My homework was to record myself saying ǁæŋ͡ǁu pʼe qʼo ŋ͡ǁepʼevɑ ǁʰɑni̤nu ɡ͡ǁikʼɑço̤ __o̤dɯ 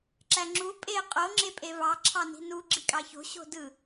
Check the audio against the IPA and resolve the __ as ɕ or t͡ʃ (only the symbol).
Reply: ɕ